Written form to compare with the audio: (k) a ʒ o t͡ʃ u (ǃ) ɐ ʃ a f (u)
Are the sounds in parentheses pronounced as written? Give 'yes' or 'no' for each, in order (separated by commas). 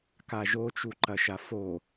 yes, yes, no